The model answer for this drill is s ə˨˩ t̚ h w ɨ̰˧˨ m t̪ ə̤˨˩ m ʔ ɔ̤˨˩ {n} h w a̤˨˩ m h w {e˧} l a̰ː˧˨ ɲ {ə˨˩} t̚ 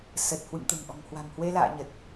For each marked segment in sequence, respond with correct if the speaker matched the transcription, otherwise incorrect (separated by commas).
incorrect, correct, correct